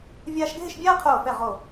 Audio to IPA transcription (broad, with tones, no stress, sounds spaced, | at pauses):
vʲ aː˥ ʃ ɡʱ ɪ˥˧ ʃ bʲ aː˥ qʰ oː˧˩ f ɛ˧˩ ʁ o˧˩